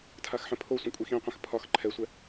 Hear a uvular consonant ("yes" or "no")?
yes